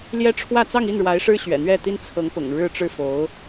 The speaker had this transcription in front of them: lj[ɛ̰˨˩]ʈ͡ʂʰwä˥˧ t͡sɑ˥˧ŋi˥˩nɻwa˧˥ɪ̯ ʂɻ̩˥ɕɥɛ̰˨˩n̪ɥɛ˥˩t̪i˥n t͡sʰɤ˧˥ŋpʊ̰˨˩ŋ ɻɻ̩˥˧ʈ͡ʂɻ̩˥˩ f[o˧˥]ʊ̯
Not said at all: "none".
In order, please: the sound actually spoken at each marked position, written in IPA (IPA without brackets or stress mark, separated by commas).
ɛ˥, o˧˥